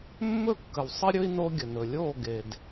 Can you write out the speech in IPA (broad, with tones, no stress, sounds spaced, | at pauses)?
mː ɵ˦˨ kː ə˨ w sˤ ə˦ ɾʲ ɵ˦ i̯ n o˦ ɡʲ ə˨ n ɵ˨ lʲ o˦˨ ɡ e˨ d